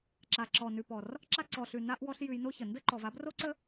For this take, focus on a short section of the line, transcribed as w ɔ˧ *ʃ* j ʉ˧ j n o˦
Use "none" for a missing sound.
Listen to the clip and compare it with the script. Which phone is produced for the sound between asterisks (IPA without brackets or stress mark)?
ɬ